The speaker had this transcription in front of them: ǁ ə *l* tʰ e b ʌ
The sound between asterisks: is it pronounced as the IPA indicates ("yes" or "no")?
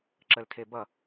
yes